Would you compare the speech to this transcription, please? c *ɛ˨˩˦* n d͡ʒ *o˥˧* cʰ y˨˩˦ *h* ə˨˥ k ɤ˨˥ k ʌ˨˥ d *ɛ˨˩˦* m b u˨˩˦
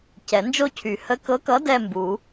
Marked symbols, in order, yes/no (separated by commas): yes, yes, yes, no